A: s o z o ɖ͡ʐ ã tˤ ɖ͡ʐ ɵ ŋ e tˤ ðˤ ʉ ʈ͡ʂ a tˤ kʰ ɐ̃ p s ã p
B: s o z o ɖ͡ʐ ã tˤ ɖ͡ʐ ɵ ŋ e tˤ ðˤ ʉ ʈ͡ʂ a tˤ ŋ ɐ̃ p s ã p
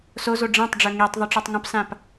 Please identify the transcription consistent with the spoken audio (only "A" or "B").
B